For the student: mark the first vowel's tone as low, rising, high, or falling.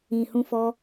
low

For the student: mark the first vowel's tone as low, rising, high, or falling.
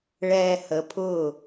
low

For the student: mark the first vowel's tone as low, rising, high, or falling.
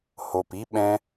low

